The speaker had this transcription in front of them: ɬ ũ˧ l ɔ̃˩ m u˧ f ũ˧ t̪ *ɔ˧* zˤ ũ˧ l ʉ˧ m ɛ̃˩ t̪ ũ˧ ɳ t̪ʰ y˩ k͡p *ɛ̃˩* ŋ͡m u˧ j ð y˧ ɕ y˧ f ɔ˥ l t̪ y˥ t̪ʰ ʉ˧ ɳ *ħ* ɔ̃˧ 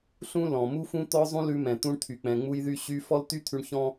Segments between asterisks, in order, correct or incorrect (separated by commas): correct, correct, incorrect